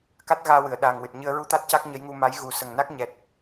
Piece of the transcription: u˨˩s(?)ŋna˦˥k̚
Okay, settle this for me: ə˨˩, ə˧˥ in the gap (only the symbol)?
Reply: ə˨˩